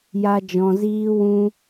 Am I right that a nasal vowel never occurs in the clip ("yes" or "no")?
no